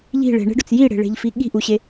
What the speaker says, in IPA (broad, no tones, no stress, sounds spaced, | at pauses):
ʎ i̤ ɭ e̤ ɳ e̤ ɖ ʊ t͡s j i ɽ e̤ ɭ e̤ ʎ f i ɠ i̤ ʔ u ɕ e